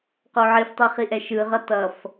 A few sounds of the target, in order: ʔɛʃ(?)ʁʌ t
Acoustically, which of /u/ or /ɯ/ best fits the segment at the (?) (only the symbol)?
ɯ